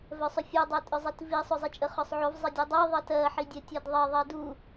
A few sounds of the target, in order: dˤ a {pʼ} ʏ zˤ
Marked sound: incorrect: tʼ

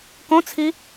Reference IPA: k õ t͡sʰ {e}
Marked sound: incorrect: i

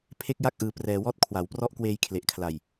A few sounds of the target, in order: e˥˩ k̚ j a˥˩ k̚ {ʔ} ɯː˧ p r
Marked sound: correct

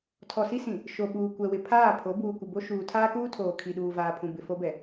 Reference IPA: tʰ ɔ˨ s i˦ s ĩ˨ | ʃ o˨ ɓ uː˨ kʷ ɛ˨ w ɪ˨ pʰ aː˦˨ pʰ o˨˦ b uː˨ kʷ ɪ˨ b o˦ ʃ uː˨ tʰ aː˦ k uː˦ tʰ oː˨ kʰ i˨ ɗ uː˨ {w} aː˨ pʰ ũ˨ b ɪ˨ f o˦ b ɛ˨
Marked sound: incorrect: v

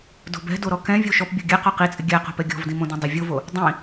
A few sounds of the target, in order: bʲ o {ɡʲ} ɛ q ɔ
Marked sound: correct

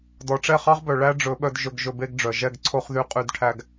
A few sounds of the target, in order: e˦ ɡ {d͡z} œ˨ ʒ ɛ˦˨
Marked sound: incorrect: ɖ͡ʐ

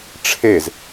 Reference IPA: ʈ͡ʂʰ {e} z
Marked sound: correct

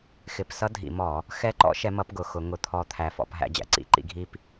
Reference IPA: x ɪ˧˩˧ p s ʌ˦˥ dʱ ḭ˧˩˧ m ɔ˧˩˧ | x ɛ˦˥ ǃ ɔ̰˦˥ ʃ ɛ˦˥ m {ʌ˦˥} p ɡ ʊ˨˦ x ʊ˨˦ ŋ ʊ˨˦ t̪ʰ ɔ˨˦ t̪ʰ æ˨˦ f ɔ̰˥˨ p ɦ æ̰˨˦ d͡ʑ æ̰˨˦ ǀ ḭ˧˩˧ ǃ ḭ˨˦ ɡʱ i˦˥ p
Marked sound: correct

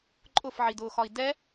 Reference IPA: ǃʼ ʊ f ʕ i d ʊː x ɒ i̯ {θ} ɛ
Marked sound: incorrect: d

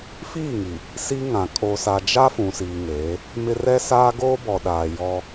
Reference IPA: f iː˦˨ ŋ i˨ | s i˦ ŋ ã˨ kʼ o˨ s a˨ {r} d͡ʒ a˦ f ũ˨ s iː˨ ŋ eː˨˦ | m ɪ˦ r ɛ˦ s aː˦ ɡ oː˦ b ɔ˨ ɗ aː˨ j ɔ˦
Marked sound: incorrect: none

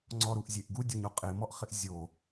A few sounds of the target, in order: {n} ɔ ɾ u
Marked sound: incorrect: ŋ͡ǀ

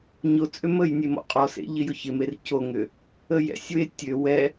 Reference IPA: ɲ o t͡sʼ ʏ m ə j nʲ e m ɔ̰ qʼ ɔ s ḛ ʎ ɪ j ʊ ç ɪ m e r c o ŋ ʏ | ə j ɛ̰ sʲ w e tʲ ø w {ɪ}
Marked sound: incorrect: ɛ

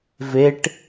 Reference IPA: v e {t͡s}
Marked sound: incorrect: ʈ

